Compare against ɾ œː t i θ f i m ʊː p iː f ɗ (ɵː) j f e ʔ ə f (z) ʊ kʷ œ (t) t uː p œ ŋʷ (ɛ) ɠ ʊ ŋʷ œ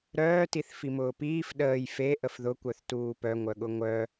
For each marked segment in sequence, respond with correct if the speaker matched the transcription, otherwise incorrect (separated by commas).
incorrect, incorrect, incorrect, incorrect